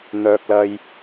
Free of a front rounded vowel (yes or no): no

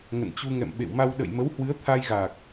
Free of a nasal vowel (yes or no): yes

